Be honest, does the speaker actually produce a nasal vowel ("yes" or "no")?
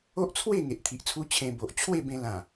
yes